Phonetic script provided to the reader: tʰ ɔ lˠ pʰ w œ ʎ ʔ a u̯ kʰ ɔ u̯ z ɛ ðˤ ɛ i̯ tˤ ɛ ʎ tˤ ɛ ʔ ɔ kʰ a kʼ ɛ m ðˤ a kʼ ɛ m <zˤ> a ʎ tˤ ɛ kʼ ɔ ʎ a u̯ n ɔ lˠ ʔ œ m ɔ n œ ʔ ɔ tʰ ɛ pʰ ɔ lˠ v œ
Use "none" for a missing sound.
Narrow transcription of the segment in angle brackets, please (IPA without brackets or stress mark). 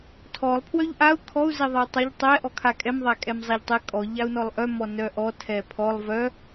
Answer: zˤ